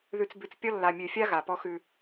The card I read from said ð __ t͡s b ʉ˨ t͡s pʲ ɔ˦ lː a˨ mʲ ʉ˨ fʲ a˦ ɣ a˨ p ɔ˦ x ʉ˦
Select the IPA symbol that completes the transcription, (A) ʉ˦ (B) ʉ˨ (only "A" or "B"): B